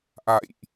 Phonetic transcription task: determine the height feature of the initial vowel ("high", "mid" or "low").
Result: low